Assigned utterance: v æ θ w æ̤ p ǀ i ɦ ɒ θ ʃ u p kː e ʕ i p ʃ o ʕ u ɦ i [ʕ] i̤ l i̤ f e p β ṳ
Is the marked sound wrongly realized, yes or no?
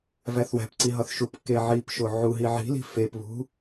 no